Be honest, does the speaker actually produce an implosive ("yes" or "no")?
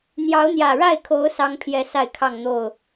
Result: no